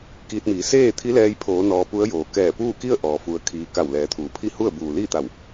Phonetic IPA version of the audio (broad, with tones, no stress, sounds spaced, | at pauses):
k iː˧ t̚ m iː˩˧ s eː˥˨ t̪ʰ i˧˥ l ɛː˧ j pʰ oː˩˧ n ɔː˧ p u˧˥ ə̯ j oː˩ k ɛː˧˩ p uː˥˨ k i˥˨ ə̯ ʔ ɔː˩ f u˧ ə̯ kʰ iː˧ k a˧˩ w l ɛː˩˧ t̪ʰ uː˩ pʰ i˥˨ h u˥˨ ə̯ b uː˩ l iː˥˨ t̪ a˧˩ w